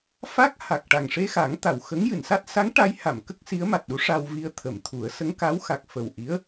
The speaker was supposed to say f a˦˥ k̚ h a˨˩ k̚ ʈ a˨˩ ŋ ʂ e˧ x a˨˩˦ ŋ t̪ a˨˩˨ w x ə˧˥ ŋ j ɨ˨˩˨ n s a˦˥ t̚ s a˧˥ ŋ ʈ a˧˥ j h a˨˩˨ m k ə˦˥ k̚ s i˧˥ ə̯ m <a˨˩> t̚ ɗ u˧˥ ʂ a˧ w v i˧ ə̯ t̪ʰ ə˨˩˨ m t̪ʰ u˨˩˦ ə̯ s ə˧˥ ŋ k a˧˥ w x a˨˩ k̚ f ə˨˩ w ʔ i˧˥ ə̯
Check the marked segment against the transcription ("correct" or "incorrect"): correct